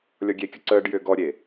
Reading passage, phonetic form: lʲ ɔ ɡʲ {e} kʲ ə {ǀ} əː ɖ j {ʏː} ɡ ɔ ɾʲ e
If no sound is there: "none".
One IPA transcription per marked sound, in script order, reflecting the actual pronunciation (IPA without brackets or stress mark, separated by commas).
e, ǀ, ʏː